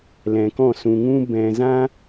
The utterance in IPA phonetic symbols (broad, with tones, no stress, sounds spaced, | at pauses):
l ɛ̃˨ k ɔ̃˦˨ s ũ˨ ŋ ũ˦ b ɛ̃˨ z ã˦